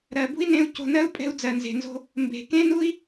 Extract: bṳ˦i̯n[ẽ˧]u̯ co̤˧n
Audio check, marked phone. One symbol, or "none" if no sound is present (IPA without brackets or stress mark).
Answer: ẽ˧